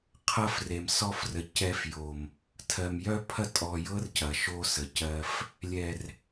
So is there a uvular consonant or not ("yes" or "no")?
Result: yes